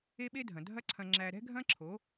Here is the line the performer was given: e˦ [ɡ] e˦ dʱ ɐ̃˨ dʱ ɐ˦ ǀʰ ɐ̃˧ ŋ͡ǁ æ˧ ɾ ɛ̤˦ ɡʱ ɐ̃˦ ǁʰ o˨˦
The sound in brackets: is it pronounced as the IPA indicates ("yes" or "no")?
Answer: no